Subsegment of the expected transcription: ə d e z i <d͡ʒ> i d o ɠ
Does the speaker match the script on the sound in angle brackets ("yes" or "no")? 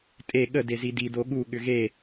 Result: no